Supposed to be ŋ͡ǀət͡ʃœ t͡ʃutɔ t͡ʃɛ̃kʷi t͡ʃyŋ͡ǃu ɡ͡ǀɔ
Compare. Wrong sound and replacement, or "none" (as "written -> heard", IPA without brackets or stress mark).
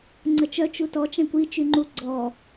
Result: none